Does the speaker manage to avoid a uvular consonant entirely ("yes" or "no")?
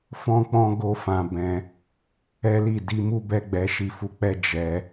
yes